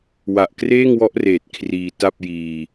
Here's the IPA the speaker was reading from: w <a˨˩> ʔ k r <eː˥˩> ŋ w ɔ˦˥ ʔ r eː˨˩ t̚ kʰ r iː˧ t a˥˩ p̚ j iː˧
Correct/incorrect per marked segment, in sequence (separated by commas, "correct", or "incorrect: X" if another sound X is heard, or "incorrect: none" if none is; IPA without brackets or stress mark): correct, correct